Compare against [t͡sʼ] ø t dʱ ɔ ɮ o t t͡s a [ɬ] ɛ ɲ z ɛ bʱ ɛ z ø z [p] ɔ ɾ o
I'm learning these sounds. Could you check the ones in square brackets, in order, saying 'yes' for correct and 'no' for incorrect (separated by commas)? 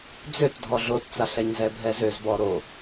no, yes, no